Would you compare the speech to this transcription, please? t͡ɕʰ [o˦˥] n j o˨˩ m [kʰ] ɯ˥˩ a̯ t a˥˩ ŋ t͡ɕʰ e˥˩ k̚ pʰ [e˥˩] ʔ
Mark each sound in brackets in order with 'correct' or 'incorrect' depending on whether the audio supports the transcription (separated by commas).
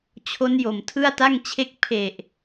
correct, incorrect, incorrect